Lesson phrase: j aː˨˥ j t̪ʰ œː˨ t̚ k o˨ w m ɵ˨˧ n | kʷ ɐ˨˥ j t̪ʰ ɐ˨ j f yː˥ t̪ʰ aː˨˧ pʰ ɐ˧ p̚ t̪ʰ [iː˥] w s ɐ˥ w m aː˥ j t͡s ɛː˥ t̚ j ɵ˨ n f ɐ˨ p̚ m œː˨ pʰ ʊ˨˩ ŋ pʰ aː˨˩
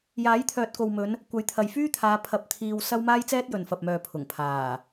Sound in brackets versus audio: incorrect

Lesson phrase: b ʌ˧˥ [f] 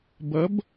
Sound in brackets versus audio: incorrect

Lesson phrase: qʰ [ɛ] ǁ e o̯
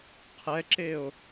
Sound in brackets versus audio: correct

